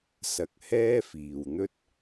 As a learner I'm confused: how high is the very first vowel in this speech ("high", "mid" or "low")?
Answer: low